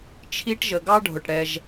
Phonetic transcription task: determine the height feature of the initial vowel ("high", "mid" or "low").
high